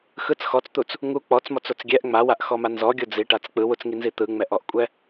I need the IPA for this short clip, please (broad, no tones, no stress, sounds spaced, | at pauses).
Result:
x ɯ t͡s x ɔ t͡s t̪ u t͡s | ŋ u k͡p ɔ t͡s m ɔ t͡s o t͡s ɡʲ ɛ ʔ ŋ͡m a w a ʔ x ɔ m a n z ɔ ɡʲ o d͡z i ʈ a t͡s k͡p ɯ w u t͡s ŋ i n z i t̪ ɯ ŋ͡m ɛ ʔ ɔ ʔ kʷʼ ɛ